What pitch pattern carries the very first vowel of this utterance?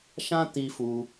high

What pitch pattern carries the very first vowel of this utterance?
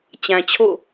low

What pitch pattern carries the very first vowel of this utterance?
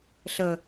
low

